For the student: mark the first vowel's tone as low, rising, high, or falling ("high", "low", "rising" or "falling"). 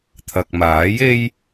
low